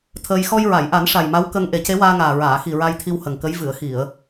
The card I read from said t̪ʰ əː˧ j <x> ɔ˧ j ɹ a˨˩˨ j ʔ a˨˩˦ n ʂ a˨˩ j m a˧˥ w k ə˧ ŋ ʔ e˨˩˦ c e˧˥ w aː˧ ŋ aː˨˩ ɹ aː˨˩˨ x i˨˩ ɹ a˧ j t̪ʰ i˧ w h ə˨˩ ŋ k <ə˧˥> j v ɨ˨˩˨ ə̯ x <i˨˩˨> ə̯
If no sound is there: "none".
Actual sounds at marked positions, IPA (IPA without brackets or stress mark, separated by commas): x, ə˧˥, i˨˩˨